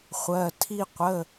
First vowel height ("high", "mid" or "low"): mid